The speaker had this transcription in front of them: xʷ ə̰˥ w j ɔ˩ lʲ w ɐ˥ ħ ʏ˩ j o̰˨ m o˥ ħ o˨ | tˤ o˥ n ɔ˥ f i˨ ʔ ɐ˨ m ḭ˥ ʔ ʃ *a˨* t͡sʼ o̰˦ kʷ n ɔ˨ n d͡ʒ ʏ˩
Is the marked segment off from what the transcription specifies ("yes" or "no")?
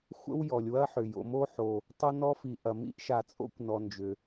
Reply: no